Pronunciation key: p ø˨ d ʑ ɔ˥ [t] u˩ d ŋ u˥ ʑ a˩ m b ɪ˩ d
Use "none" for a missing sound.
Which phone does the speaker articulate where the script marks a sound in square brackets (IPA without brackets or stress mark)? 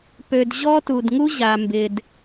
t